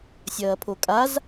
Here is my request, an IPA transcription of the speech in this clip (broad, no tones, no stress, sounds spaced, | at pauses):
sʲ ɐː pʰ o kʼ a z